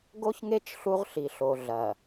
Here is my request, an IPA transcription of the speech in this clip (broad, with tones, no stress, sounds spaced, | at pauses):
ɡ o˦ ç ŋ e˦ t͡ʃ ɬ u˦ ʁ ɬ i˨ ɬ o˨ ɮ ɐ˨